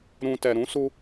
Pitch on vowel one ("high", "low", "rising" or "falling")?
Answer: low